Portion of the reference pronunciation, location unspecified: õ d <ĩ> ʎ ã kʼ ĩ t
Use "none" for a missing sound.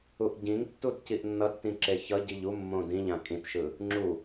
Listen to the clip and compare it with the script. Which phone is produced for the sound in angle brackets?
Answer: ĩ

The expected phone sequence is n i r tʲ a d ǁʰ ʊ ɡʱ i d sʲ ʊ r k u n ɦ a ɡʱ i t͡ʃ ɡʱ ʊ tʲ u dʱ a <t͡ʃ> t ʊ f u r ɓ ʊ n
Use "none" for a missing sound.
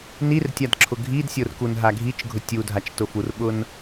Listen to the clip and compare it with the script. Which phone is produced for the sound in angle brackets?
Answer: t͡ʃ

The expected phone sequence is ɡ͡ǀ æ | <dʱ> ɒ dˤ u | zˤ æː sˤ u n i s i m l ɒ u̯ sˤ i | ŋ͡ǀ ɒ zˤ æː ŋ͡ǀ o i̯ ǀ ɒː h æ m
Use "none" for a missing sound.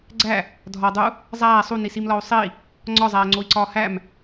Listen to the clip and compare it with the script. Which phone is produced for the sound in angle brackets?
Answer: dʱ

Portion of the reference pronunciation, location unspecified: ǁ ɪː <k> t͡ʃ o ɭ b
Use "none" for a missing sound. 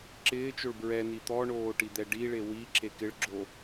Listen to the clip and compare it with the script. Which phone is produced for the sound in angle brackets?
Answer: none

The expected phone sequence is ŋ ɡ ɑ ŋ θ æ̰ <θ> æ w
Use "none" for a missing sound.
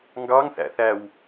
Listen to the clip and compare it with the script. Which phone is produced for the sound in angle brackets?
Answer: θ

